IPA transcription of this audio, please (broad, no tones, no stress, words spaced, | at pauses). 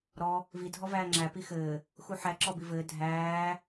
ɾɔ | vidʱɔvæː ŋ͡ǁæ pixɘː | xuħæ ǁɔbivɘː dʱæː